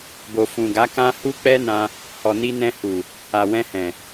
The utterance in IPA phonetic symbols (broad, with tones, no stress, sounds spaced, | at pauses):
b o˨ f ũ˨ ɡ a˨˦ k ã˦ h u˦ k͡p ɛ˦ n ã˧ | h ɔ˨ n i˧ n ɛ̃˧ h u˨ | a˨ w ɛ̃˧ h ɛ̃˨